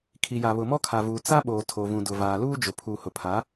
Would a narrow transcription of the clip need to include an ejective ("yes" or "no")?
no